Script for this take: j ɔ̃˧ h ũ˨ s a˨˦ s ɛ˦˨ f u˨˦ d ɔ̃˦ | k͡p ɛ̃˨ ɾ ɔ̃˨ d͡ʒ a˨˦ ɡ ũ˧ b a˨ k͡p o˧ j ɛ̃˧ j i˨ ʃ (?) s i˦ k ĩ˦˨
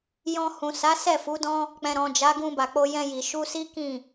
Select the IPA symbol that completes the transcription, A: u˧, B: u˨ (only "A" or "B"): A